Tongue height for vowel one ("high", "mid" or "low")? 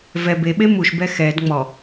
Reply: mid